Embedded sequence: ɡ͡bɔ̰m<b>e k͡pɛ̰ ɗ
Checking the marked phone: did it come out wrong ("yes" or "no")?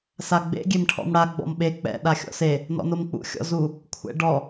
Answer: yes